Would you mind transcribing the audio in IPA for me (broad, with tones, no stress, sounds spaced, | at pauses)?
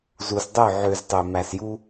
z u˨ s dˤ ø˦˨ ʕ ø˨ z tˤ ø˨ m æ˨ s j u˦